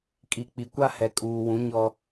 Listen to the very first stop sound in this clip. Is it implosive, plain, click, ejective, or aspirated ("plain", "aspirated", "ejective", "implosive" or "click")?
ejective